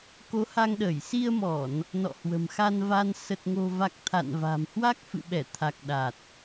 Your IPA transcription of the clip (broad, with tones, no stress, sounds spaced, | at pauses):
k o˨˦ h a˧ ŋ ɗ əː˧˩ j s i˧ ə̯ m ɔ˧˩˨ n | n ɔ̰˧˨ h w ə̤˨˩ m x a˧ n v a˧ n s ə˨˩ t̚ ŋ o̤˨˩ v a˨˩ k̚ t̪ʰ a̰˧˨ n v a̤˨˩ m h w a˦˥ k̚ f ɨ̰˧˨ ɓ ɛ˧˩ t̪ʰ a˨˩ k̚ ɗ a˨˩ t̚